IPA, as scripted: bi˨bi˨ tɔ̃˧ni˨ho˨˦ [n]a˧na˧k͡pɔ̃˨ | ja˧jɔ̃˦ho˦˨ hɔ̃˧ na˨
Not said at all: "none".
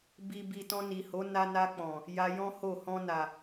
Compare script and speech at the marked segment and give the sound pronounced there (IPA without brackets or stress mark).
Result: n